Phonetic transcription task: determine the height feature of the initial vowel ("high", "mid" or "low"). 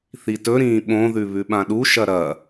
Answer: high